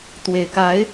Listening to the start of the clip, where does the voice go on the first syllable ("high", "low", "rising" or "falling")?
low